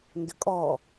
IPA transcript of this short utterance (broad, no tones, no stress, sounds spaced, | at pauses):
n d ʏ kʼ ɔ